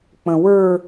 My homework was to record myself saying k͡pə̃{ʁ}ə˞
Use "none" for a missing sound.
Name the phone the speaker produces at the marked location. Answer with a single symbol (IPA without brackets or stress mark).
w